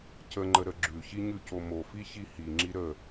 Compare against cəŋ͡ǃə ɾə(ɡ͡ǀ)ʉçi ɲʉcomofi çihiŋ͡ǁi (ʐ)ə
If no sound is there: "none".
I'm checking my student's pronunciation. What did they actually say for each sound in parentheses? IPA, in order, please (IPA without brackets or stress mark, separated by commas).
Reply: ɡ͡ǁ, ɾ